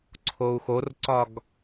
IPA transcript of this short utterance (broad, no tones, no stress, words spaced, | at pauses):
ǀʰou̯xorǀɒɡ